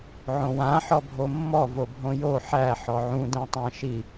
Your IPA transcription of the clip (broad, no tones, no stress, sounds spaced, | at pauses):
ʕ õ w ã ħ ɔ bʱ o mː ɔ v o bʱ õ j o ħ æ ħ ɔ ʕ ũ d æ̃ tˤ ã ʃ i